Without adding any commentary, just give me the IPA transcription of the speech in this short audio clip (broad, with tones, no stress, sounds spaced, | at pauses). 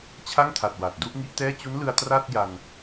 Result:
t͡ɕʰ a˥˩ ŋ tʰ a˨˩ t̚ w a˨˩ t̚ d u˥˩ ʔ ŋ i˦˥ ʔ t ɛː˥˩ t͡ɕ u˦˥ n l ɯ˧ a̯ t r a˥˩ t̚ j a˧ n